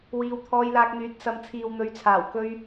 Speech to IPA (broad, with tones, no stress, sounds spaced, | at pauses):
w iː˨˧ w t̪ʰ ɔː˧ j l aː˧ k̚ n̪ yː˨˥ t̚ s ɐ˨˧ m t͡sʰ iː˨ w n̪ ɵ˨˥ ɥ t͡sʰ aː˨˩ w k ɵ˧ ɥ